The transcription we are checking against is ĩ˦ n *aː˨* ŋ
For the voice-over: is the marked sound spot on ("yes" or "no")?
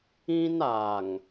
yes